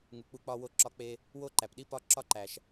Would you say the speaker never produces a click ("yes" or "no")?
no